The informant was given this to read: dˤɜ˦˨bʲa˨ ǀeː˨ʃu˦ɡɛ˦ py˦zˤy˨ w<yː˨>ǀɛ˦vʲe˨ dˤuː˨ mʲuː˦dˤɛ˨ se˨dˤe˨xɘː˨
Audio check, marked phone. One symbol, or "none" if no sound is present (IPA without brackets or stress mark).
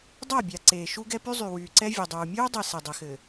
yː˨